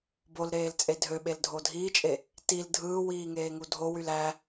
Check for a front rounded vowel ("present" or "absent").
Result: present